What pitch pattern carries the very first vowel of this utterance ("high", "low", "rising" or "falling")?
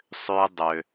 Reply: high